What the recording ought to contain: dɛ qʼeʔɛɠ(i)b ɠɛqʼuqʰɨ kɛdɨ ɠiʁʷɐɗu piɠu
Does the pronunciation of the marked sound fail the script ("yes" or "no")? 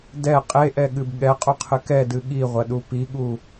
yes